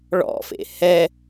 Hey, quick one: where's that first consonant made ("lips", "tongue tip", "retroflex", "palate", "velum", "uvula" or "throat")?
retroflex